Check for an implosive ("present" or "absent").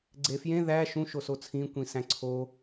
absent